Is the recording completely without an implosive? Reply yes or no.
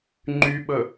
no